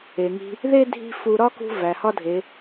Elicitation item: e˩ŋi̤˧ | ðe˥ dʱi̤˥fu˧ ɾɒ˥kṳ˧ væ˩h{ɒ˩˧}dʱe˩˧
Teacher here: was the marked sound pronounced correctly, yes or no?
no